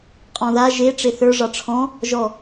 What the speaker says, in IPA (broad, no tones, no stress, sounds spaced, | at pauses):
qʼ ɔ̃ ð a ʒ e ʈ͡ʂ e θ ə˞ ʐ ɑ ʈ͡ʂʰ ɔ̃ | ʒ ɔ